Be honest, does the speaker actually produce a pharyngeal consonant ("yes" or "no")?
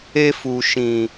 no